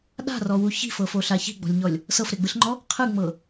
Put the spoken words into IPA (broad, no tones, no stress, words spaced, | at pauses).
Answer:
ɗa̤rɔwu çi̤fɤfoɬa çi̤ɡ͡bɔ̤lʲɲɔlʲ | sɤfɾeɡ͡bɯɬŋ͡ǃɔ | qʰɯŋ͡mɤ